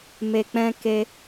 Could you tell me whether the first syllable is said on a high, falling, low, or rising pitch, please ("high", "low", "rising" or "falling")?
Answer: low